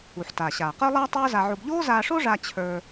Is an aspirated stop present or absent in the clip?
present